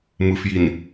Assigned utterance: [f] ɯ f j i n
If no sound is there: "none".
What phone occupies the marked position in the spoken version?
m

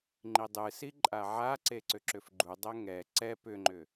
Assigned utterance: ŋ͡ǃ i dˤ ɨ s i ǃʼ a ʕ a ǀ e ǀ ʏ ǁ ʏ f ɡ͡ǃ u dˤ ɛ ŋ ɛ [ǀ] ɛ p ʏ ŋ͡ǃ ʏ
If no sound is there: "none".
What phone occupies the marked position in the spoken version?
ǀ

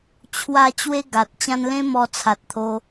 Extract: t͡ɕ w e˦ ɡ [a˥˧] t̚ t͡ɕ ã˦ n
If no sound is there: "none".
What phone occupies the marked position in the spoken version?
a˨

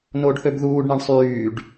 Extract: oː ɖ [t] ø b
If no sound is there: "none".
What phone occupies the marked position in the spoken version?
θ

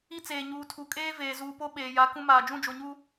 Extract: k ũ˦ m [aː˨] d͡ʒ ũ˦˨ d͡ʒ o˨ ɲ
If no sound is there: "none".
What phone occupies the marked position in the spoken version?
aː˨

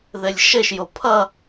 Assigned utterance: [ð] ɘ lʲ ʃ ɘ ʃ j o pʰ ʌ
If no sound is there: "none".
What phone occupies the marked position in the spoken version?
ð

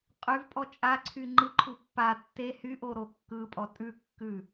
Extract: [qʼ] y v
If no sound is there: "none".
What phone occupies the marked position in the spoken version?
qʼ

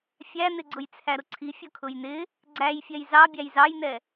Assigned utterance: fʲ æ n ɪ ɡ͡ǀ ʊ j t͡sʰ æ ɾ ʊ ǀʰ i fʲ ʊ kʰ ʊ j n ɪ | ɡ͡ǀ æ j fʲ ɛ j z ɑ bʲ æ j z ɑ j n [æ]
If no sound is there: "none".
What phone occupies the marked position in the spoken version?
ɛ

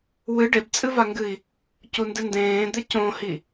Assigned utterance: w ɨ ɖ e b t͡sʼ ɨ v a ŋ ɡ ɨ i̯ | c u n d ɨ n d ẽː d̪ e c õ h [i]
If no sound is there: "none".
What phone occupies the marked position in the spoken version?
i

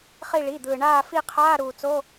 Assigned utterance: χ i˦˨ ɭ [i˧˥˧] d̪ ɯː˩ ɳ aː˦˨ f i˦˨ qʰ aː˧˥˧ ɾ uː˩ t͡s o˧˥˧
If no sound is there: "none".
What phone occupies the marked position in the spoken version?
i˩˧˩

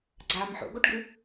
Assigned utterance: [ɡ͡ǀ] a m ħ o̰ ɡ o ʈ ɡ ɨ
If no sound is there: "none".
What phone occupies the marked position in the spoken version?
ɡ͡ǀ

